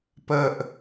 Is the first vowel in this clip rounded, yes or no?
no